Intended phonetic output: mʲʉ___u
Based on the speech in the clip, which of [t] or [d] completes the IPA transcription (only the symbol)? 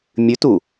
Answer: t